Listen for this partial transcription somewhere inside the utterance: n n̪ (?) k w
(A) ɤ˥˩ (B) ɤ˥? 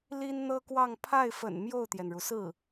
B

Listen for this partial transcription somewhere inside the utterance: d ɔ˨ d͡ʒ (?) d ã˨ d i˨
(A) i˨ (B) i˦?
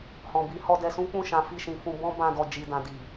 A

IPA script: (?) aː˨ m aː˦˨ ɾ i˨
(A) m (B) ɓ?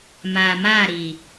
A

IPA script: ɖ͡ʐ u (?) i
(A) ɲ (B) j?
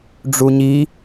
A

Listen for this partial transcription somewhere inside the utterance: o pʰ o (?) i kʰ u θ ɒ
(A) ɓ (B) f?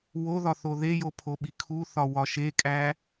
A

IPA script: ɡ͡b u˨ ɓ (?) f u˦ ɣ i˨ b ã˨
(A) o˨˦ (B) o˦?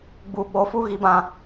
A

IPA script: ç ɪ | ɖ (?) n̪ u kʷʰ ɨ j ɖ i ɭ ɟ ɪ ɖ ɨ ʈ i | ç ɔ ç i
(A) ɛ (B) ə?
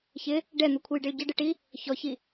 A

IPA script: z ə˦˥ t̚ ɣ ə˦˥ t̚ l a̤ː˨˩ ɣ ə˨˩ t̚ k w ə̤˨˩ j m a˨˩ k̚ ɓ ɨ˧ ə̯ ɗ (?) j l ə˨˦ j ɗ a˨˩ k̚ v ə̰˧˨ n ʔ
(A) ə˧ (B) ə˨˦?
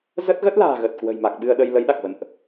A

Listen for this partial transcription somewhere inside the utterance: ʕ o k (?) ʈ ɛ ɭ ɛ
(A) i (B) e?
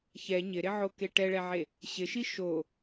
B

